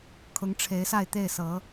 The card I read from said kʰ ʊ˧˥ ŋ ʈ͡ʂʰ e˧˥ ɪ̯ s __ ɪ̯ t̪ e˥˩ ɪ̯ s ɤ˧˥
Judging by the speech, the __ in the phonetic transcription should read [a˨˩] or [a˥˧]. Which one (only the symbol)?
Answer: a˥˧